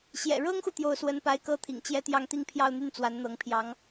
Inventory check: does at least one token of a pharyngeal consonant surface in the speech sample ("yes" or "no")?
no